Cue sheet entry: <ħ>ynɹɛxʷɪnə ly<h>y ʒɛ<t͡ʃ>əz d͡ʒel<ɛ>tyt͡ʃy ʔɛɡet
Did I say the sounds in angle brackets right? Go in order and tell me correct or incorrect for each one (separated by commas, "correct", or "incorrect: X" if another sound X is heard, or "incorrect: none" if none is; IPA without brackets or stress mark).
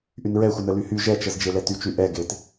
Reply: incorrect: ʔ, correct, correct, correct